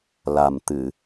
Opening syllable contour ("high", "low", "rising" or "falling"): low